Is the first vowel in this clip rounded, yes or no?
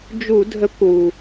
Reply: yes